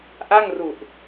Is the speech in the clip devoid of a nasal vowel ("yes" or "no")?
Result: yes